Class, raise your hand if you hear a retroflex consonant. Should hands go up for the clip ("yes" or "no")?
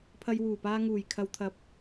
no